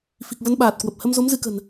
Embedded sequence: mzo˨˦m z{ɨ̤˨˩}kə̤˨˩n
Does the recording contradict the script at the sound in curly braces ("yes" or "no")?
yes